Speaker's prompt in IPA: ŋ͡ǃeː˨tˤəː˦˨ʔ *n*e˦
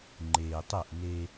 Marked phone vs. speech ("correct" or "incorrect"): correct